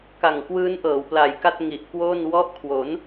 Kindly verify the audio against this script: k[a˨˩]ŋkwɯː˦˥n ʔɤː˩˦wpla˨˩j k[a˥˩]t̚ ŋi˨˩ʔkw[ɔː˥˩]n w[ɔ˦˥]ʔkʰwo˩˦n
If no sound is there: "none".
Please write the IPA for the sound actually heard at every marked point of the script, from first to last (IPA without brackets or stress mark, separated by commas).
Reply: a˨˩, a˥˩, oː˥˩, ɔ˦˥